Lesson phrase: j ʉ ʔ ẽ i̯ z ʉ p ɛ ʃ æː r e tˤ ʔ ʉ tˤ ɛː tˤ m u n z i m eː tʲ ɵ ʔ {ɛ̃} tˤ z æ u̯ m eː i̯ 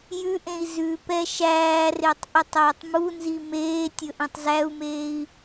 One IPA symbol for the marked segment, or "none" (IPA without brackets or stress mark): ɛ̃